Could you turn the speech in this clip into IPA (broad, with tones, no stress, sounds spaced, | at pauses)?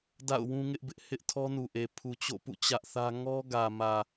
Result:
d a̰˦˨ ʊ̯ w ũ˦ ŋ ɪ˦ ʔ b ɪ˦ ʔ h ɪ˦ ʔ tʰ ɔ˦ n u˨ ʔ e˨ pʰ u˨ t͡ɕ o̰˦˨ p ṵ˦˨ t͡ɕ ä˦ ʔ θ ä˦ ŋ ɔ˦ ɡ ä˨ m ä˨